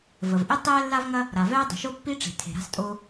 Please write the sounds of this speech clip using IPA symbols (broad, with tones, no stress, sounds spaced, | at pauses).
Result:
v ə˩ v ʔ e˥ tˤ ɛː˥ lː a˥ v ŋ ɐ˥ | ɾ a˩ v ɛː˥ dˤ ə̤˩ ʃ o˥ pː i˥ ʈ͡ʂ e̤˩ tʰ e̤˩ ɾ a̤˥ s tʼ o˥